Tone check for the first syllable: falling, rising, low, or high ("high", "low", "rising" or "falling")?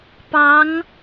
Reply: rising